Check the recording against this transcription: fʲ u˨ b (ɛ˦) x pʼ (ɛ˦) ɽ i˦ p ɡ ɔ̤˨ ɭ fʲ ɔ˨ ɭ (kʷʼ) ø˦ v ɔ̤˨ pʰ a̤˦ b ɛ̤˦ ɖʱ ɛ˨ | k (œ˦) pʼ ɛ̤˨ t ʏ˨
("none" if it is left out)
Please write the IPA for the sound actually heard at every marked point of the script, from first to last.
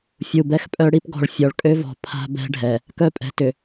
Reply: ɛ˦, œ˦, kʼ, œ˦

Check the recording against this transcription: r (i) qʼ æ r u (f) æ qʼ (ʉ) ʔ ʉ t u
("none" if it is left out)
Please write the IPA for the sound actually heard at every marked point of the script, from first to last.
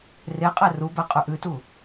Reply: e, b, ʉ

